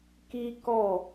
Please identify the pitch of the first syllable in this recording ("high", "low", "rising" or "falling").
high